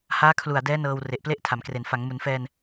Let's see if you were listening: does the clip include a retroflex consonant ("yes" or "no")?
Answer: no